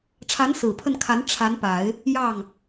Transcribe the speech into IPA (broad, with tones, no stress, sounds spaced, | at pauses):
ʈ͡ʂʰ a˧˥ n s ɹ̩˨˩ pʰ ə˥˩ n kʰ a˧˥ n ʈ͡ʂʰ a˧˥ n p a˨˩˦ ɪ̯ | j ɑ˥˩ ŋ